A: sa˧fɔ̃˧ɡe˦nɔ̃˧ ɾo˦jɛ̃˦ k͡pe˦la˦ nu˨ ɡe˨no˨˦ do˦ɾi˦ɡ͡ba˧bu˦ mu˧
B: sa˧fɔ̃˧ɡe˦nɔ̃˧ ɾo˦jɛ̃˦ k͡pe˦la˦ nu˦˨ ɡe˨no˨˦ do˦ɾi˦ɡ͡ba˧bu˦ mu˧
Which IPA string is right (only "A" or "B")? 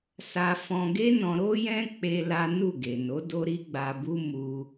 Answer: B